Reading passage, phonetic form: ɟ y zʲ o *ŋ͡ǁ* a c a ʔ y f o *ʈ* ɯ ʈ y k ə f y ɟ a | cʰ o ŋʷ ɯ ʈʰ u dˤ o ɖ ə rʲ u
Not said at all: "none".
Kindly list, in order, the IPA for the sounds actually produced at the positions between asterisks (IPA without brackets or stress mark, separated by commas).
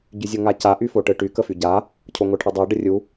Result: ŋ, ʈ